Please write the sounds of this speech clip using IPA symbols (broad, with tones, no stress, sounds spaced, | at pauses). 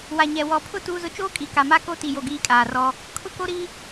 w a˨ ɲ ɛ˨ w ɔ˨ pʰ ʊ˦ t uː˦ z ʊ˦ t͡ʃ oː˦ kʼ i˨˦ k a˨ m a˦ k o˦ t i˨ j o˨ ɡ iː˦ kʼ aː˨ r ɔ˦ | kʰ ʊ˦ k o˦ ɾ i˦